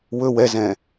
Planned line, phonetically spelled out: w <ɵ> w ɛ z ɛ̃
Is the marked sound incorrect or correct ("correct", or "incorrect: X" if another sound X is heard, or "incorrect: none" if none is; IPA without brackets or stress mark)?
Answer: correct